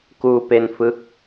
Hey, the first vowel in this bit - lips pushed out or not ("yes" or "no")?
yes